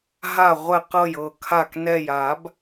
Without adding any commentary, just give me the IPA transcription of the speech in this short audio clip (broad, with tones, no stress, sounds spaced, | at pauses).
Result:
ɦ a˨˩ ʁʷ ɛ˨˩ q ɤ˨˩ j ɤ˨˩ kʰ a˨˩ k n ɛ˨˩ j a˧˩˧ b